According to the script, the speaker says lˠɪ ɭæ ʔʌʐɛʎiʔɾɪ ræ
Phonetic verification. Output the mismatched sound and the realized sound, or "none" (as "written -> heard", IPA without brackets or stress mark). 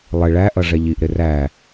none